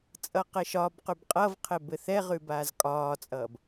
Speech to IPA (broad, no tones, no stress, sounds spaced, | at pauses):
t͡sʼ ʌ q ɘ ʃ ɒ b q ʉ b qʼ ʌ v qʰ ɘ b ɘ θ ɛ ʁ ʉ b aː z kʼ ɒː t͡sʼ ʌː b